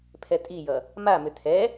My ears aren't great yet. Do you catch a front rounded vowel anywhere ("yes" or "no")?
yes